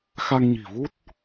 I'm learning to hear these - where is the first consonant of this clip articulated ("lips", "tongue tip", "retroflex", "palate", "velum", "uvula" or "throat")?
velum